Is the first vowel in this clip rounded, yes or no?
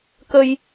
no